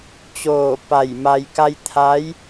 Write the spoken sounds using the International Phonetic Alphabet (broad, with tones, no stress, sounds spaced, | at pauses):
t͡ɕ oː˧˩ p a˧˩ j m a˧ j k a˧ j t̪ʰ a˧˥ j